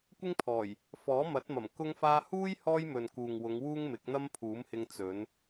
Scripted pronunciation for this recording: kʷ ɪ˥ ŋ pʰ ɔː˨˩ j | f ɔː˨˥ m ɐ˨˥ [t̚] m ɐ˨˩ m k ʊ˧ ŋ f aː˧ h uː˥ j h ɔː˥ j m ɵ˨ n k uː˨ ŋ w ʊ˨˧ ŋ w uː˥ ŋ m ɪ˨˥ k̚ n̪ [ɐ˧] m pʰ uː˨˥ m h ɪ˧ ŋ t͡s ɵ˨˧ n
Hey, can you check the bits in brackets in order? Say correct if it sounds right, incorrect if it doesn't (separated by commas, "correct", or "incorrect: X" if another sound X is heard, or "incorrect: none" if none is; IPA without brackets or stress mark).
correct, incorrect: ɐ˥